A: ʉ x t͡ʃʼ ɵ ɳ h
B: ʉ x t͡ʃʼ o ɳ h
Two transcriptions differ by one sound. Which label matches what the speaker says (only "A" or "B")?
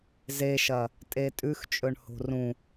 A